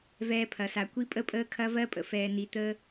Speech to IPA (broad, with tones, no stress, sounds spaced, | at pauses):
v ɛː˧ pʰ ɐ˩ s a˩ kʷ i˧ pʼ ə˧ pʼ əː˧ kʰ ɐ˧ v ɜ˧ pʼ ə̰˩ f ɛː˩ n i˩ t̪ əː˧